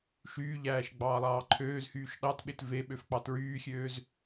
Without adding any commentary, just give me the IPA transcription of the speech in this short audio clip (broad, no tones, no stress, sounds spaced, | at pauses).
ʃ yː ʎ æː ʃ ɡ͡b ɑː lˠ ɑː ǃʰ øː z h yː ʃ ɗ ɑ t ɓ e t v e ɓ ø f k͡p ɑ t ɹ yː xʲ øː z